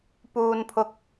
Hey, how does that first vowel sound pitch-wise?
low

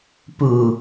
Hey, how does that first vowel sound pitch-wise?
low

